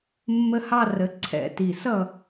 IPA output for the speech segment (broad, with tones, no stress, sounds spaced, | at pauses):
mː ə˥ h ɑ˥ r ə˨˥ ǀʰ ɛ̰˨˩˦ t i˨˩ s ʌ˥˨